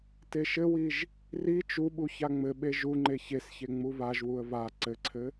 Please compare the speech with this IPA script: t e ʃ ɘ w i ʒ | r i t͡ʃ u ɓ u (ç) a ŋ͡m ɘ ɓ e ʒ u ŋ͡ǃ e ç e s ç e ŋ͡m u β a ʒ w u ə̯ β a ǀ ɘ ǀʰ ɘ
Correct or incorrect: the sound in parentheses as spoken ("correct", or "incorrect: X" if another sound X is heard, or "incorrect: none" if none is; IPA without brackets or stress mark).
correct